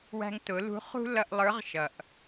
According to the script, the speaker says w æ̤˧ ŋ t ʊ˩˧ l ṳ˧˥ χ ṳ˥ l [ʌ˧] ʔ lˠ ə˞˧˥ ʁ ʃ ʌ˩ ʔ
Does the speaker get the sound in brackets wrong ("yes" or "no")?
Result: no